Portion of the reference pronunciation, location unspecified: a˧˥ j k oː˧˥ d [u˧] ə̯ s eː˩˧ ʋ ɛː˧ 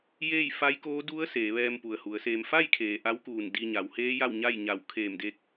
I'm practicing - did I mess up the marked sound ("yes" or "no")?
yes